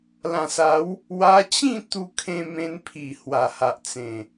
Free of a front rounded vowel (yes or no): yes